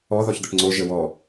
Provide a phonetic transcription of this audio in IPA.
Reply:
ɔ ðɔçd̪əʈŋ͡ǀo ʒəwɔ

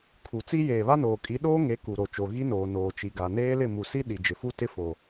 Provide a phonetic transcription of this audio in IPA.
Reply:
kʰu˨t͡si˦ jeː˨βa˦noː˨kʼi˨˦ ɗoː˦ŋe˨˦ ku˨ ɾo˨t͡ʃo˨ ɣi˦noː˨ noː˨t͡ʃi˨ɡa˨ neː˦lɪ˦˨ mu˨si˦ ɗi˨d͡ʒɪ˨fu˦ tɪ˦fo˨

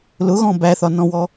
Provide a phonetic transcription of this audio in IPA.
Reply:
lʊɣɔ̃ bæθɒnɔ̃wɔ

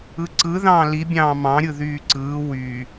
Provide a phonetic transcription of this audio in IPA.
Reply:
ɯǀɯðɑ̃ː libʲɑ̃ː mɑ̃ɾʲɯ ðyːǀɯː wy

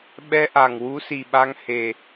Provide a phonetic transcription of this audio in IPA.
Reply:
ɓɛ˧ʔa˨˩ŋ wu˧˥si˨˩ɓa˧ŋ he˨˩

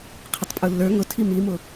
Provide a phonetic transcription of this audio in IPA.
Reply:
qʰɪtˤpʼulːə˞ ŋʊtʰi mimʊ

